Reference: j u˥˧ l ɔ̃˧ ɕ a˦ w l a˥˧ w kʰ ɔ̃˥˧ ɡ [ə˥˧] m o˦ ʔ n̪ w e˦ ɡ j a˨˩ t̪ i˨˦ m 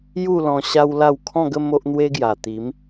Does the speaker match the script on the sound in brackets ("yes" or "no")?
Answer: yes